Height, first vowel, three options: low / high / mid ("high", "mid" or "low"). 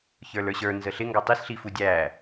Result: mid